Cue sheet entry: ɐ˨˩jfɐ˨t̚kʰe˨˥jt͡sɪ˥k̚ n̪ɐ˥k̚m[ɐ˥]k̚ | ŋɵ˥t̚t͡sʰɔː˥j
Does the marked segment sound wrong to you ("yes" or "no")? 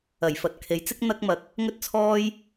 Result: yes